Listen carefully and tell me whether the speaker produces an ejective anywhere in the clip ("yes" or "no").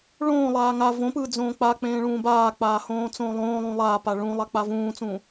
no